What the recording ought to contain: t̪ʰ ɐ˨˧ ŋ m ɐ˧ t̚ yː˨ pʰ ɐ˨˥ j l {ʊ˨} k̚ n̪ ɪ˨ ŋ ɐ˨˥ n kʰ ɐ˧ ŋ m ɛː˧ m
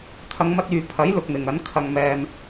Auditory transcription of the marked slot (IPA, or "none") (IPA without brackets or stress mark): ʊ˨